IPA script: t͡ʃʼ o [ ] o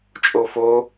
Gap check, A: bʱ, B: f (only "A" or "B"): B